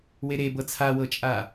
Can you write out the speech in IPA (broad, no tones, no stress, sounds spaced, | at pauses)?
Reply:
w e ɾ e b ɤ t͡sʰ a w ɤ t͡ʃʼ a